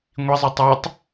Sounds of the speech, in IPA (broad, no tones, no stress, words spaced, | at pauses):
ŋʷizˤɯ tˤatˤ